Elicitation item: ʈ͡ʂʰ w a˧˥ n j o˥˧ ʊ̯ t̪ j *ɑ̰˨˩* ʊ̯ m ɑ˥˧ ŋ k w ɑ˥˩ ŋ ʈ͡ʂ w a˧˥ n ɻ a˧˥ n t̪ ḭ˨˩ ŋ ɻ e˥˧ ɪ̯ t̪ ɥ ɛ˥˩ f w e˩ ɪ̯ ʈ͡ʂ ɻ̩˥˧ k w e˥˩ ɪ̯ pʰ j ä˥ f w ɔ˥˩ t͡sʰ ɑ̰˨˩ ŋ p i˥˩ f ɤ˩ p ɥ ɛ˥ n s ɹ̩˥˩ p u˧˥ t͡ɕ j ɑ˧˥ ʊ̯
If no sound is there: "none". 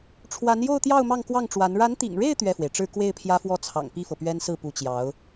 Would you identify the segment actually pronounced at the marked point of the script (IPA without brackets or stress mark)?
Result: ɑ˥˧